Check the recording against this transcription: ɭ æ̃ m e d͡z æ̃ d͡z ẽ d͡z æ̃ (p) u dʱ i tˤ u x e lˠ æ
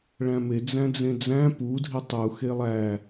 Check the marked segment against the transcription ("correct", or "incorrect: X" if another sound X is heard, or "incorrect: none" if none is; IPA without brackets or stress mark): correct